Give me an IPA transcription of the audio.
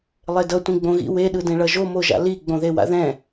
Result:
lˠedʌ tʷĩɡ͡bõɣḭ we ɗɯdẽɭʌʒo moʒa̰li ɡ͡bõðewa̰ðɛ̃

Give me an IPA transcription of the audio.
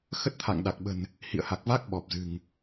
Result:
xə˦˥t̚t̪ʰa̰˧˨ŋ ɗa˨˩k̚ɓə̤˨˩n | hḭ˧˨ə̯ha˨˩k̚va˦˥k̚ ɓɔ˨˩p̚zɨ̤˨˩ŋ

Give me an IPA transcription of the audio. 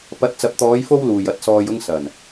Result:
pɐ˨˥t̚t͡sɐ˨˥p̚t̪ɔː˨˧jfo˧w luː˨˩jɐ˨˥t̚sɔː˨jʊ˧ŋ sɐ˨˩n

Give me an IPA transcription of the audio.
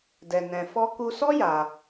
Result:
dɛ˧nɛ̃˧fɔ˦ ku˧sɔ˦ ja˧

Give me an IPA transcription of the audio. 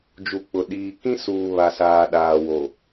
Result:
d͡ʒu˨k͡pʊ˨ ɗiː˨ kĩ˦suː˨ βa˨saː˨ ɗaː˨wo˨

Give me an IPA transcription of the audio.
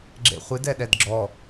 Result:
ɡ͡ǁḛχʷɨd ɛɗɛdɡ͡ǁɔ

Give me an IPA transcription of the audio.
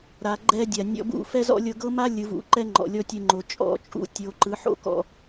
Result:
ɾa˨ ɡ͡ǃɛ˦dʲa˨ nʲɔ̰˧bṵ˦˨fɛ˦zɔ̰˦ lʲɤ˧ɡɤ˦ma˦ lʲɯ˨˦vṵ˨˦ǃɛ˦ ŋ͡ǃɔ̰˨lʲɔ˦tʲɯ˧ŋ͡ǃo˨ t͡ʃʼɔ̰˦˨t͡ʃʼṵ˦ tʲo˨ǃɯ˨˦ ħo̰˦kɔ̰˧

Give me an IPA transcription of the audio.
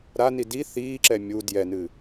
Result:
ɾani di θiːǁɛ mʲu djɛnɨ

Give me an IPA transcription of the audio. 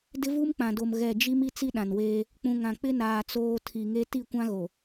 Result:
dɪ˦vu˦mk͡pã˨do˨m ɣɛ˨ d͡ʒi˦m i˦t͡si˦ ɗã˨nweː˦ | k͡pũ˨ŋã˨k͡pɪ˦naː˨ t͡soː˦ tʰi˨ŋe˦ ti˦˨kʷã˦ɣo˨

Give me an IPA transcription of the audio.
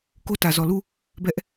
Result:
ko˦tä˨zɔ˨ lu˦˨ | bɛ˦ʔ

